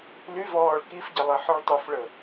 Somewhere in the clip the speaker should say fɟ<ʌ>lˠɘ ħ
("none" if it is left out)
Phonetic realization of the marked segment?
ʌ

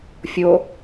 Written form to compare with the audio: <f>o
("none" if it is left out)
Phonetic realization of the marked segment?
fʲ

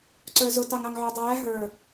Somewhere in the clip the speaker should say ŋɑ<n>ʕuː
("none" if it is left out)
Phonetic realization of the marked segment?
ŋ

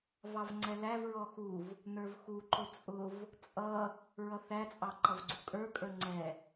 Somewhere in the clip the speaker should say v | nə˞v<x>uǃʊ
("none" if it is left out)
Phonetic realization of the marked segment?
x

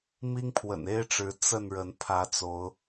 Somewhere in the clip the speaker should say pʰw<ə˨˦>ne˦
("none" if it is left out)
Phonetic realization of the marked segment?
ə̰˨˩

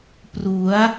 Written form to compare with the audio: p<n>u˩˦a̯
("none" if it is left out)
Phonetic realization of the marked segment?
r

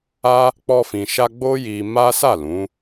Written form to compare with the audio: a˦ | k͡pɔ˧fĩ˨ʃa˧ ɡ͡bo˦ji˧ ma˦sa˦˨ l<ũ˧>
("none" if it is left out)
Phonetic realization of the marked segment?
ũ˨˦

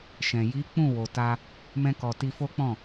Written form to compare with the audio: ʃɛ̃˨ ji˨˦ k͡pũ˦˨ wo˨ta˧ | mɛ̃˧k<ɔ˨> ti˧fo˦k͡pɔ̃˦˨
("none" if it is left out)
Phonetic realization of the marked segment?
ɔ˨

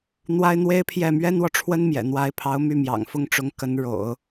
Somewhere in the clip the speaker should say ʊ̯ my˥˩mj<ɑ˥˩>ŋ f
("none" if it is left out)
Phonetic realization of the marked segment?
ɑ̰˨˩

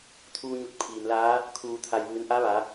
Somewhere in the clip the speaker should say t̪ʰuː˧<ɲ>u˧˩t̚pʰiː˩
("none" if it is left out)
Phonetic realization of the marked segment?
ɲ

